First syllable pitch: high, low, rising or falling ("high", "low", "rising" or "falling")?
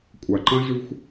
low